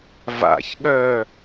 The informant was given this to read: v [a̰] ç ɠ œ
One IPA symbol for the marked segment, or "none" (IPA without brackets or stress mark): a̰